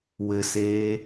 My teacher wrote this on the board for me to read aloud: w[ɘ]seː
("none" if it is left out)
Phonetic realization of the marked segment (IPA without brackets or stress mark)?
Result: ɘ